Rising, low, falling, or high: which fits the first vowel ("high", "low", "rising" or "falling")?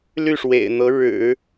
falling